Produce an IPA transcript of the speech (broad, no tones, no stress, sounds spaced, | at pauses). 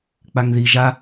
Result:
k͡p a ŋ ð i ʒ a